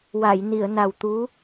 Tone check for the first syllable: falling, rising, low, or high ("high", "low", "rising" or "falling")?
low